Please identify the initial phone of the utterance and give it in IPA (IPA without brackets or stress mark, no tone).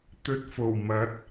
t̪